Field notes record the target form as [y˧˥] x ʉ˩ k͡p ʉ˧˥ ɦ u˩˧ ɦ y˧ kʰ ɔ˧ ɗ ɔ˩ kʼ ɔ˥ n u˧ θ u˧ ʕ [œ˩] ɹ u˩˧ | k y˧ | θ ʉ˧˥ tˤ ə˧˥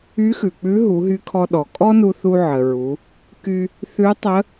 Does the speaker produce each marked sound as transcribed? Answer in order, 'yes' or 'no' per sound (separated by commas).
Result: yes, no